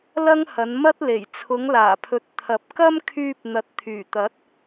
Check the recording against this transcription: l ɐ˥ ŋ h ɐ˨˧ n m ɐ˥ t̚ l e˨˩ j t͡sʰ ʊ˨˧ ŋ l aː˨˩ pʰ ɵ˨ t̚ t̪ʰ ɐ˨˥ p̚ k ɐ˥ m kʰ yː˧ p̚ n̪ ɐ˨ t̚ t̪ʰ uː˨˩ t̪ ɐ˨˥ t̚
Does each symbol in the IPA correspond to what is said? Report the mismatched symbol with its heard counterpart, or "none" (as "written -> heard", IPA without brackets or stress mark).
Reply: uː˨˩ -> yː˨˩